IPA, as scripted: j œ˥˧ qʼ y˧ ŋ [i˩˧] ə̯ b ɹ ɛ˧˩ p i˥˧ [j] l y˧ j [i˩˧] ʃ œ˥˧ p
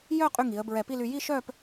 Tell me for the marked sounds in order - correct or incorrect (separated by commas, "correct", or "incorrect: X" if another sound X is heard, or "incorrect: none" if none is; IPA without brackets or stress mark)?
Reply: correct, incorrect: none, incorrect: i˥˧